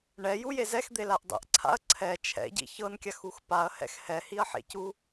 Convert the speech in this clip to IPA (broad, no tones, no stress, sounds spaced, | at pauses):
ɳ ɛ j u j e z ɛ x d̪ e l a ʔ dˤ ḭ ʔ ǀʰ a̰ ɐ̯ ǀʰ ɛ t͡ʃʰ ɛ̰ ɟ ḭ ç ɤ n kʲ a x u x p a ɐ̯ h ɛ̰ x h ɛ h i ɐ̯ ħ ḛ c u